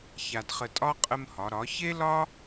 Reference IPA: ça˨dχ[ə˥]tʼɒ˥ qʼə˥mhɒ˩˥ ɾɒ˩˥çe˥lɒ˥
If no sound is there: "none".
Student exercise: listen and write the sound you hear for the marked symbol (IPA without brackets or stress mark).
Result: ə˨